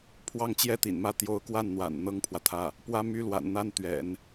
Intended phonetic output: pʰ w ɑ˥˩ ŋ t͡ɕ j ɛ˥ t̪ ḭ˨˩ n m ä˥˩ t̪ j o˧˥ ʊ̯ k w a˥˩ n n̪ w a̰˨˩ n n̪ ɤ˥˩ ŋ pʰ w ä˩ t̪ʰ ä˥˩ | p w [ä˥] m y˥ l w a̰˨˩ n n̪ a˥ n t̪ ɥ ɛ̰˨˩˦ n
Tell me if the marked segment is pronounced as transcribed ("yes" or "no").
yes